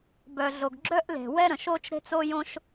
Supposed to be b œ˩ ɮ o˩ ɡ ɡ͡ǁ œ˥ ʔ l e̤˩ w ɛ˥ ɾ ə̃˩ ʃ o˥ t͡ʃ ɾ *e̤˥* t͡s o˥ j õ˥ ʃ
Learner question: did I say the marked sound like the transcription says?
yes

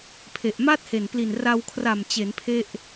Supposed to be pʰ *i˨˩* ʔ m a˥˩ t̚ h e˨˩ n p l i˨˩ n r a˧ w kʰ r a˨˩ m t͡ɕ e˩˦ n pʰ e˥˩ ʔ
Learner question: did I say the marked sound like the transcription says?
no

